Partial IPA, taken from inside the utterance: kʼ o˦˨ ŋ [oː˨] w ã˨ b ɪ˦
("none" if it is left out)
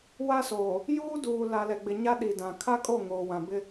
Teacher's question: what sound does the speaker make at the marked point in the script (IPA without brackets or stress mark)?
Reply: oː˨